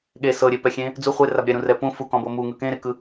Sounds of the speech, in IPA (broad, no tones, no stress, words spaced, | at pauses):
ɠe sɤɾʲepɛxʲẽ | d͡zu χʷerab ɾʲɛɾũrɛ pũ fukɔ̃bɤ muŋɯ kẽɾekɯ